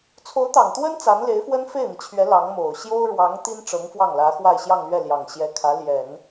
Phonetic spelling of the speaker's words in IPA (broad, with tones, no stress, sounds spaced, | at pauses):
t͡sʰ o˧˥ ʊ̯ t̪ ɑ˨˩ ŋ t̪ w ə˥ n t͡s a˧˥ n l e˧˥ ɪ̯ f w ə˥ n f e˥˩ ɪ̯ n̪ i˩ t͡ɕʰ ɥ ɛ˧˥ l ɑ˧˥ ŋ m o˨˩ ʊ̯ ɕ j o˥ ʊ̯ ɻ w ɑ˧˥ ŋ t̪ i˥ n ʈ͡ʂ ɤ˧˥ ŋ f w ɑ˥˩ ŋ l ä˧˥ x w a˥˧ ɪ̯ ɕ j ɑ˥˧ ŋ l ɥ ɛ˥˩ l j ɑ˨˩ ŋ ɕ j ɛ˧˥ kʰ ä˧˥ l j ɛ˨˩˦ n